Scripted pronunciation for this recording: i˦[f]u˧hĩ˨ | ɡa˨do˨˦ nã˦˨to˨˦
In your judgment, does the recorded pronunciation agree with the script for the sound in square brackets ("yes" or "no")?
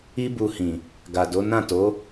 no